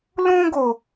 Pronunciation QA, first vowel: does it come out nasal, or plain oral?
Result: nasal